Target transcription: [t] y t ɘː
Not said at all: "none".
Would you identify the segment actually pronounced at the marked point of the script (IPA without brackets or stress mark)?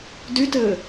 d